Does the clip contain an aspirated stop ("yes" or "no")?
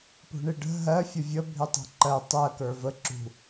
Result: no